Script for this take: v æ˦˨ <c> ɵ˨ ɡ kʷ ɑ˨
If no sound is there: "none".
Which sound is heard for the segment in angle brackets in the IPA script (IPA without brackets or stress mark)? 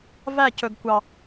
c